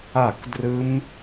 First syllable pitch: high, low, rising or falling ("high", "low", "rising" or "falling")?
falling